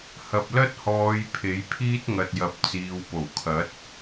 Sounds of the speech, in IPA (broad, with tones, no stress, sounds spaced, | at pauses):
h ɐ˨ p̚ l ɐ˥ t̚ h ɔː˨˧ j pʰ e˨˥ j pʰ iː˥ t̚ ŋ ɐ˨ t̚ j ɐ˨˥ p̚ t͡s iː˨ w p o˨˩ w kʰ ɐ˨˥ t̚